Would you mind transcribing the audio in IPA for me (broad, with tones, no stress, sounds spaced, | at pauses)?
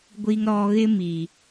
ɡʷ i˨ ŋ ɾ ɔ˨ ɣ ɪ˦ m i˨